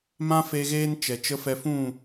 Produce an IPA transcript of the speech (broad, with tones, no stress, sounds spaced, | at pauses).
m ã˦ f e˧ ɣ eː˦ n t͡ʃ ɛ˨ t͡ʃ ə˦ f ɛ˧ f ũ˦˨